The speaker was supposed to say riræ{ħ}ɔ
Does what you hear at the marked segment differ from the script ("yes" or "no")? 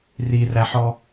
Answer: no